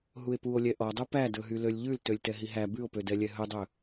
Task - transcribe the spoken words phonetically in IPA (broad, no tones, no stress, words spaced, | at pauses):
ɦue̯puo̯lʲɛ ʔɔdˤu pædɵɦy lølʲʎʉl tølʲtɛɦiɦæ bʉo̯pødɛ lʲɛɦɵdˤɵ